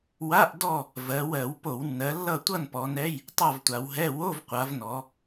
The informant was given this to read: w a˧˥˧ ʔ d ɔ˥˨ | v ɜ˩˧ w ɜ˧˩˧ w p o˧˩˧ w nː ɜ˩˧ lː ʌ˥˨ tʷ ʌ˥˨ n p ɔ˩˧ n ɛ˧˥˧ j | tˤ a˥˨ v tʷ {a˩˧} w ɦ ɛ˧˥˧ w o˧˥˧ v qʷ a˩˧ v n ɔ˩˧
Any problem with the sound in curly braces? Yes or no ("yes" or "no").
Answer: no